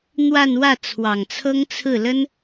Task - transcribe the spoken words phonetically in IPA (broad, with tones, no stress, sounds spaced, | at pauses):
n̪ w a˥˧ n w ä˥˩ t͡sʰ w ɑ˨˩ ŋ t͡sʰ ɤ˥ ŋ t͡sʰ ɹ̩˥˩ l ə˥ n